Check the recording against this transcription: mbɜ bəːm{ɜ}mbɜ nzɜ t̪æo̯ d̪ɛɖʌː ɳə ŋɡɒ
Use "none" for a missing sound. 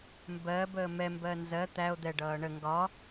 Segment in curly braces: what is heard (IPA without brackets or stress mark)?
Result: ɛ